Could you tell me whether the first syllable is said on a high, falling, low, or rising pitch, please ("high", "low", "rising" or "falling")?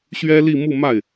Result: high